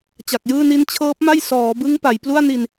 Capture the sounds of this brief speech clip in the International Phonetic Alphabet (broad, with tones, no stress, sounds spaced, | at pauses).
t͡ɕ a˨˩ k̚ j ɯː˥˩ n i˦˥ n t͡ɕʰ ɤː˦˥ p̚ m a˥˩ j s ɔː˩˦ b ɯ˦˥ ŋ p a˩˦ j p l u˥˩ a̯ n i˧ n